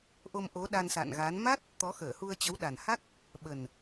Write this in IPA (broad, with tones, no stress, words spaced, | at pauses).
ʔo˧mʔo˨˦ ɗa˧nsa̰˧˨nɣa˨˦n ma˦˥t̚ | t̪ɔ˨˦xəː˧˩hu˧ə̯ t͡ɕə˨˦wɗa˨˩nha˦˥k̚ | ɓə˨˩n